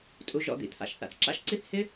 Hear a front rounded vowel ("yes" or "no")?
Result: no